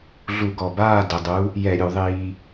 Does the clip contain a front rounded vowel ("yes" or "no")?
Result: no